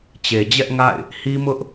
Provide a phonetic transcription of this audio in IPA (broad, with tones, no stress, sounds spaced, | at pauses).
t͡ɕ e˨ d͡ʑ ɛ˦ ʔ ŋ a̰˦˨ ɪ̯ | h i˦ m ʊ˦ ʔ